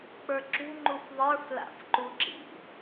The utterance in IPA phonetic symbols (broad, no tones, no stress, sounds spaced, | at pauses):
k͡p ə˞ ǁ ṳ ŋ͡ǃ u f ðˤ ə˞ f l a̰ f ǃ u ǁ ḭ